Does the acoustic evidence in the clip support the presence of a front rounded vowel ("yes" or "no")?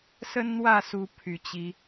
yes